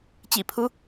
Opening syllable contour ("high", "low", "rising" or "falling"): low